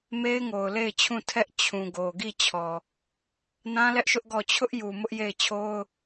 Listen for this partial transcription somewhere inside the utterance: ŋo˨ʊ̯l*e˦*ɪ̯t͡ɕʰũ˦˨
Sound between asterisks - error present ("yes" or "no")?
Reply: yes